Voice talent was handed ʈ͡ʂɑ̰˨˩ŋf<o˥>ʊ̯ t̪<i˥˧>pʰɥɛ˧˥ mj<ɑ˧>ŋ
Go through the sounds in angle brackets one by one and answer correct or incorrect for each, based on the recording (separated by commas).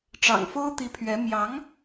correct, incorrect, incorrect